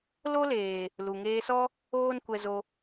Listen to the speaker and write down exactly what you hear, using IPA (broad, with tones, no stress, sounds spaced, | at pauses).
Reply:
l o˦ l eː˨ | l u˨ ŋ eː˧ s ɔ˦ | oː˦ n kʷ ɛ˧ z o˧